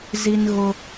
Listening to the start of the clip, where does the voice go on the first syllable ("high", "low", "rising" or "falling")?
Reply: high